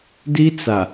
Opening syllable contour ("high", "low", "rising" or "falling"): high